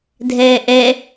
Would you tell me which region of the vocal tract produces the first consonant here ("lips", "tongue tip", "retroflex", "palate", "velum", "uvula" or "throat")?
tongue tip